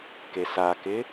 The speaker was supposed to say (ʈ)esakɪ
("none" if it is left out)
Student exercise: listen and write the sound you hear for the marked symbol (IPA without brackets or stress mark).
k